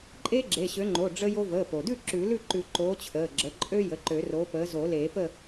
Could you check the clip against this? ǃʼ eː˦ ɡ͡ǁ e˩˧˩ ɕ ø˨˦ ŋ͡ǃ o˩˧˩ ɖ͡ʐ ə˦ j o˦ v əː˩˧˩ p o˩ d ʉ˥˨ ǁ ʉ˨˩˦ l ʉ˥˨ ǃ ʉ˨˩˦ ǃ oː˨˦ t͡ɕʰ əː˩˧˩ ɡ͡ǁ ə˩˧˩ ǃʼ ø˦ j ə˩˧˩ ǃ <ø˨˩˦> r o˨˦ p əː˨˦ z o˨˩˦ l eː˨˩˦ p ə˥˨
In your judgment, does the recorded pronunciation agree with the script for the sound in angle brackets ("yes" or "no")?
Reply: yes